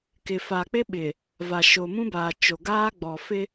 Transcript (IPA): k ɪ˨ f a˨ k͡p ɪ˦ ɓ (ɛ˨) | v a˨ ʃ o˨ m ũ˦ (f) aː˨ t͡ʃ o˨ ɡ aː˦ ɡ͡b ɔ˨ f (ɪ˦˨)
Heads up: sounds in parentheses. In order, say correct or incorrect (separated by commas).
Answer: incorrect, incorrect, incorrect